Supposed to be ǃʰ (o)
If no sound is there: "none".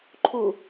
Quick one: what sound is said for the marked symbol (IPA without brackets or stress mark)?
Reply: u